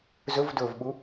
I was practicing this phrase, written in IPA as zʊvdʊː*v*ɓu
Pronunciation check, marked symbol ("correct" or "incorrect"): correct